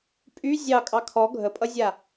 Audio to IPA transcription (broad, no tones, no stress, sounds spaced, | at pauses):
pʼ y zʲ ɑ kʼ ɑ kʰ ɔ ɡʱ ə pʼ ʌ zʲ a